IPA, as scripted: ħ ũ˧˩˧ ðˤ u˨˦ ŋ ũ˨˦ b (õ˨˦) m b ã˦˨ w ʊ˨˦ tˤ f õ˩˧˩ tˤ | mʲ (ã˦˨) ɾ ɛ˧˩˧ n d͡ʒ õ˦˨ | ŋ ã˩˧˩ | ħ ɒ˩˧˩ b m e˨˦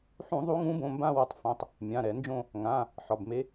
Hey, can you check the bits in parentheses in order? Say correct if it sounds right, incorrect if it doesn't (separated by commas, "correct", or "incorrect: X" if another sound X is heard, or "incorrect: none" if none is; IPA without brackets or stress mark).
incorrect: õ˩˧˩, incorrect: ã˩˧˩